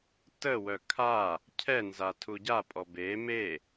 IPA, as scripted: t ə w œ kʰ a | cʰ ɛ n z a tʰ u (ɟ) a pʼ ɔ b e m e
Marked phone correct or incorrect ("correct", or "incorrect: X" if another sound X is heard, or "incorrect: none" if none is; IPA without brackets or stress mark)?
correct